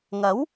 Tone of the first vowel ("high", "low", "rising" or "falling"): rising